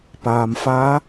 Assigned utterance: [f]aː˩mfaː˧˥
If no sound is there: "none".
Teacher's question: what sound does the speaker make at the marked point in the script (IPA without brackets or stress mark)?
p